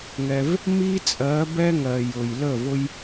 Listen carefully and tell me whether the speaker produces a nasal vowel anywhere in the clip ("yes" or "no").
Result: no